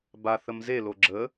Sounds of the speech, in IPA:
b a θ ə m z e l o ɡ͡ǁ ə

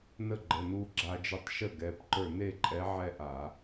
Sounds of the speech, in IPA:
n ə˥˩ ɡ͡ǃ ə˩˧˩ n u˧ ɡ͡ǁ a˧ d͡ʒ ə˧˥ tˤ ʃ ə˥˩ ɡ ɛ˩˧˩ p ǃ ə˞˥˩ n e˥˧ ǃʼ ɛ˧˥ ʕ ɛ˥˧ ʔ a˧˩˧

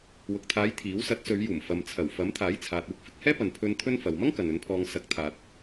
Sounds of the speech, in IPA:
w ʊ˨ k̚ t̪ʰ aː˨˧ j t̪ʰ iː˨˥ w s ɐ˨˥ t̚ s ɵ˨˧ ɥ j uː˨˩ m f ɐ˨ m t͡sʰ ɐ˨˩ w f ɐ˨˥ m t̪ʰ aː˨˥ j t͡sʰ aː˨ t̚ uː˥ k̚ f ɪ˧ k̚ h ɛː˥ p ɐ˨ n pʰ ɵ˧ n t̪ʰ ɵ˥ n f ɐ˨ w m ɐ˥ ŋ k ɐ˨ n ɵ˨˥ n pʰ ɔː˧ ŋ s ɐ˧ k̚ t̪ʰ aː˨ t̚

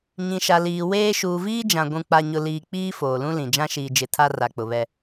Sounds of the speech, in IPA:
ɲ ĩ˨ ʃ a˨ l iː˨ w eː˦ ʃ uː˨ v iː˦ d͡ʒ ã˨ ɡʷ ũ˦ k͡p a˦ ɲ ʊ˦ l iː˦ k͡p iː˦ f oː˨ l ũ˦ l ĩ˨ d͡ʒ ã˦ ʃ iː˨ d͡ʒ ɪ˨˦ tʰ a˦ r a˨ k͡p ʊ˨ β ɛ˦

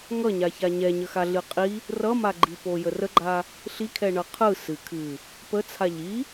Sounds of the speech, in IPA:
ŋ ʌ ɲ a ç a ɲ ɛ ɲ ə x a ɮ ɨ qʼ i | r ʌ m a ɡ͡ǃ i p o j ə r ə ɡ͡ǃ a | ɬ i kʰ ɛ ɳ ʌ qʰ ɯ s ɨ kʰ ɨ | p ə t͡sʰ a ʎ i

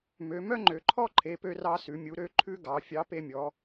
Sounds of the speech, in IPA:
m ø˩˧ m œ˥ ŋ͡ǃ ø˩ ǃʰ ɔ˥ ǃʰ e˩˧ p ø˧ r ɑ˧ s ʉ˩˧ mʲ u˩˧ ɾ ø˧ ǃʰ ʉ˥ ɡ ɑ˩˧ fʲ ɑ˧˥ p e˧ mʲ ɔ˩˧

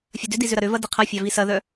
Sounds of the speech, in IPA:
fʲ ɐ d ʏ d i z ʏ ɾ ɐ ɾ ʏ v ɐ d i qʰ ɐ fʲ ɑ v i s ɐ ð œ

